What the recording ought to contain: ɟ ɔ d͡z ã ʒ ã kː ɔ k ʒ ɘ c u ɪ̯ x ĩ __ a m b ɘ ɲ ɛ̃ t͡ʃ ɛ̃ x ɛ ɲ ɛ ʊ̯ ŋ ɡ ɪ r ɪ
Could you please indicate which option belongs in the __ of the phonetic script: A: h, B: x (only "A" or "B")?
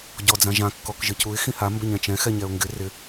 A